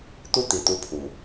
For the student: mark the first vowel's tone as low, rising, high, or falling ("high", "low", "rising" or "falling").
high